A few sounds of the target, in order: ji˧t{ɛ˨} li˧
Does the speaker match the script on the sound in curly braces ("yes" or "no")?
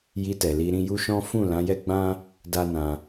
yes